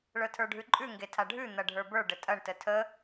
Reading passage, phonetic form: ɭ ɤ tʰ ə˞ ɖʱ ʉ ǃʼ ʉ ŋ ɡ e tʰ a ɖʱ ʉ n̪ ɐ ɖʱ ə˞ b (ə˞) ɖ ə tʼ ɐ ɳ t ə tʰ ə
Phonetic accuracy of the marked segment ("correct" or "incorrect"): correct